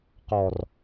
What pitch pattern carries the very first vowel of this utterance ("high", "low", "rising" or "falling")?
low